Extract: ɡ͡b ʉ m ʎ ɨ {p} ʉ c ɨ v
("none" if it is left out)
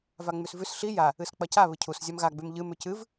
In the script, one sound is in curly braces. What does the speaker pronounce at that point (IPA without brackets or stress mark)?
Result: m